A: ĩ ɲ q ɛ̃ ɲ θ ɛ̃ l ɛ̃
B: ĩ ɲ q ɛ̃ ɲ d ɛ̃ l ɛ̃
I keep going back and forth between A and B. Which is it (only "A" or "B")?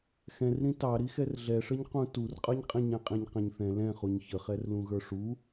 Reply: A